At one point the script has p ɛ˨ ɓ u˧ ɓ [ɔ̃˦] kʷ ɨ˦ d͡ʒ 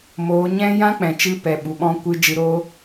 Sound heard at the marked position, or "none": ɔ̃˦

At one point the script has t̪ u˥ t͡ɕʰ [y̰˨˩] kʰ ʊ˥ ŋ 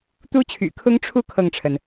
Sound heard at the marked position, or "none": y̰˨˩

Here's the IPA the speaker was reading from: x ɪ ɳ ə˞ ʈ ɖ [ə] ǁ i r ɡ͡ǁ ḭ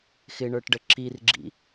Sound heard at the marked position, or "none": ə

